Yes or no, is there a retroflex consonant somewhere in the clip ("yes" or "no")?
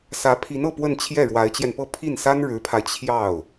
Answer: yes